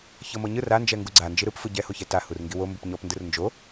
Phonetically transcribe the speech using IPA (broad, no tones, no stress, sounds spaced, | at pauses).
ç ɤ m ɤ ɲ ɯ r a n d͡ʒ ɛ ŋ ɡ u ɡ͡ǀ a n d͡ʒ i ɾ ɯ p f ɯ ɟ ɛ h o ç ɛ t a h u r ŋ ɡ i w o m b u p ɲ ɔ p n d ɯ r n d͡ʒ o